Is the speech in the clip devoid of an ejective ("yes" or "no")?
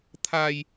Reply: yes